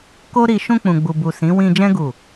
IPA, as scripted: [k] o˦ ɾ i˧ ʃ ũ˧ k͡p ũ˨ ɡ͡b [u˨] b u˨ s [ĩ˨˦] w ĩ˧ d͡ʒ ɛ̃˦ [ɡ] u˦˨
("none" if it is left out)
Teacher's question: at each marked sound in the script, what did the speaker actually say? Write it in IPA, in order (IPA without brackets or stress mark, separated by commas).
k, u˨, ĩ˨˦, ɡ